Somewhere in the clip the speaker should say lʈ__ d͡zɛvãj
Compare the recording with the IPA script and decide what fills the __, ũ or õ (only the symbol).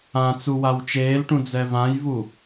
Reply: ũ